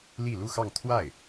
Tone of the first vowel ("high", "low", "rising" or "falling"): falling